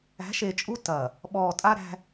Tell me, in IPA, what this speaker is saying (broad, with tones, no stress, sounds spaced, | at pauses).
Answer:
æ̤˨˦ ʃ e˨ t͡ʃʼ u˦ t ɐ˨ | ɓ ɔː˨ tʼ a˦ ɾ æ̤˦